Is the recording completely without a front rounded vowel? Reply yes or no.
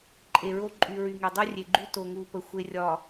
no